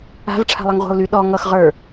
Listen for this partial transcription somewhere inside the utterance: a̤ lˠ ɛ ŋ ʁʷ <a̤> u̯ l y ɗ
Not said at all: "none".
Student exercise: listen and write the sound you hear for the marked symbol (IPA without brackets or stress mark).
a̤